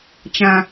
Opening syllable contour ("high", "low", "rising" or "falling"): low